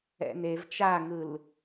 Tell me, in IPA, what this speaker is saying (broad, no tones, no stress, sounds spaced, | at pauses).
ɛ̰ n e v t͡ʃ a ŋ ɯ l